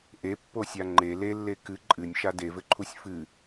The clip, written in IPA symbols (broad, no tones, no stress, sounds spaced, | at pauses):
ʔ e pː o sʲ a ŋ͡ǃ e l e lː e k ɨ ǃʼ ɨ nʲ ʃ a d e v ɘ ǃʰ u sʲ f ɨ